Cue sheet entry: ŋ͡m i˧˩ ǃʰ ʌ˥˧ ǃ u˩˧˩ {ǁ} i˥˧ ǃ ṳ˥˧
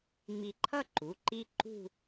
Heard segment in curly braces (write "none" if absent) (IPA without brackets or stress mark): ǃ